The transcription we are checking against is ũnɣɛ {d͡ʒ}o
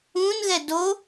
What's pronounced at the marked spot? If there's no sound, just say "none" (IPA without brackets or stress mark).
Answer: d